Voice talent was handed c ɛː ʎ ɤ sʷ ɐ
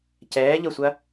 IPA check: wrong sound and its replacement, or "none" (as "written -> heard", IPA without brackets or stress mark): none